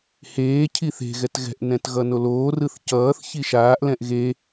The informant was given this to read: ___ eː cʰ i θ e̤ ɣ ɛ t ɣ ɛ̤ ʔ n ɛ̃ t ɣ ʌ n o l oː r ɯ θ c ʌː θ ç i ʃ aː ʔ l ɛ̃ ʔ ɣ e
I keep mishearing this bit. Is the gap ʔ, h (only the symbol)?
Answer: h